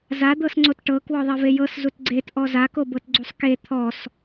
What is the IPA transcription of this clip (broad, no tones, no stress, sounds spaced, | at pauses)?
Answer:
z a d̪ ɤ s ŋ͡ǀ o t ʈ ɤ k w ɔ ðˤ e v e j ɤ s z u t ɡ͡ǀ e t ʔ ɔ z a k o b ɤ t ɡ͡ǀ u sˤ k e t̪ʰ ɔ s